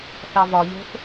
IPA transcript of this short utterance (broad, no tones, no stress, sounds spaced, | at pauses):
θ ɑ v ɒ ʎ o̤ θ